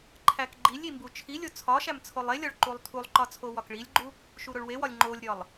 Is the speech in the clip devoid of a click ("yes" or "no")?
no